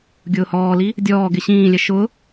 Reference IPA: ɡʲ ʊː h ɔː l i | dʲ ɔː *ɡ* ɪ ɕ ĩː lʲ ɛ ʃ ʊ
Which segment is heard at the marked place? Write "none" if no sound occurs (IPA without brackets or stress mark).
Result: ɡ